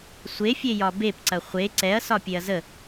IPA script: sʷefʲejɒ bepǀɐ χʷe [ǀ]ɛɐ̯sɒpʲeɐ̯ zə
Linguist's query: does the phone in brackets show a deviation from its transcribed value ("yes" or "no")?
no